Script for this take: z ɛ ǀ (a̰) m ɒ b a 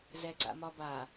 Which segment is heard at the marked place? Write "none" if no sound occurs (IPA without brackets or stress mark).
a̰